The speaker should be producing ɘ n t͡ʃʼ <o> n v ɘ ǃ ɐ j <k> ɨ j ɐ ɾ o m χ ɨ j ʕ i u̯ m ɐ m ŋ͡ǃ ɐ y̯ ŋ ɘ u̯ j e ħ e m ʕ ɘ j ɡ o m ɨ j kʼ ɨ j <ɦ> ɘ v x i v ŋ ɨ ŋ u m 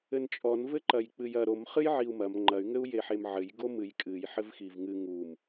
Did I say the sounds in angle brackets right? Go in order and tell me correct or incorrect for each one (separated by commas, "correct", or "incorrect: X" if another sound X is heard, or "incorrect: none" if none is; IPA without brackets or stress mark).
incorrect: ɔ, incorrect: k͡p, incorrect: ħ